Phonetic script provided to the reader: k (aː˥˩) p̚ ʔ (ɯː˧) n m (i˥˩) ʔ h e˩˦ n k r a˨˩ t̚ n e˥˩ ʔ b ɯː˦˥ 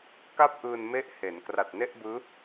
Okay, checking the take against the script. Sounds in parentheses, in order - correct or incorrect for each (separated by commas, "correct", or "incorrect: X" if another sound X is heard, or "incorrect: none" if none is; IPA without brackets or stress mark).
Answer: incorrect: a˥˩, correct, incorrect: e˥˩